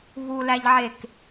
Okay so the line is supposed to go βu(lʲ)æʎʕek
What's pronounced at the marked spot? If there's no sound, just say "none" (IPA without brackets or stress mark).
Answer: l